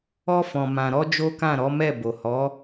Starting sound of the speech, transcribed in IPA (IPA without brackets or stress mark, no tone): ɔ